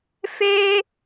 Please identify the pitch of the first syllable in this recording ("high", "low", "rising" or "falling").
high